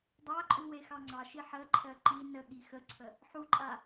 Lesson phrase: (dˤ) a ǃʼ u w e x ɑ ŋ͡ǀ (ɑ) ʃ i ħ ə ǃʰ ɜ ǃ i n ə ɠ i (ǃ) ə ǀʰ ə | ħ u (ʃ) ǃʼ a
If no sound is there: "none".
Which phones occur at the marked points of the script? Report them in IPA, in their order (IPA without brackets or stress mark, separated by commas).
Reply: dˤ, ɑ, x, none